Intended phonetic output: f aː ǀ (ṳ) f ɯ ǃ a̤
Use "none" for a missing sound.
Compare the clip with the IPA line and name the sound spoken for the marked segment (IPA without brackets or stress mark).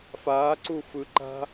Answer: u